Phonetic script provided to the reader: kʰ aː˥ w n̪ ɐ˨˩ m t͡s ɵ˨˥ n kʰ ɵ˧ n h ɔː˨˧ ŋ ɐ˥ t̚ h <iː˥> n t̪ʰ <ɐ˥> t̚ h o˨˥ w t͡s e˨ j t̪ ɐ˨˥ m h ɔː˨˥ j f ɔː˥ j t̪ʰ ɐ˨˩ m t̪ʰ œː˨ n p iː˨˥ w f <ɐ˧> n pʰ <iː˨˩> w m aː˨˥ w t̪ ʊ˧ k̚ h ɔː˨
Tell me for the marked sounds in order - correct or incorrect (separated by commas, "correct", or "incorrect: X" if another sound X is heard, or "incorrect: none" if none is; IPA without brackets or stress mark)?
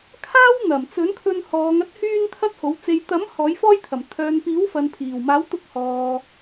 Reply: incorrect: yː˥, correct, incorrect: ɐ˨, correct